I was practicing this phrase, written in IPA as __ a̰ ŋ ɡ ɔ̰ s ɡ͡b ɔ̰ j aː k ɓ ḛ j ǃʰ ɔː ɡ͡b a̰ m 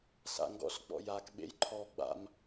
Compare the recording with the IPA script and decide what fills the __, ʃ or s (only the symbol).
s